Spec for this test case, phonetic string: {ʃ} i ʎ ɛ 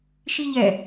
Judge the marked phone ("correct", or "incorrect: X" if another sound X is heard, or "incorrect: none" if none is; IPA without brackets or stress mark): correct